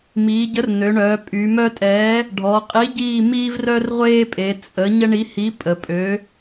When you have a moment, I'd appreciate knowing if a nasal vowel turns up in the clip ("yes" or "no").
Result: no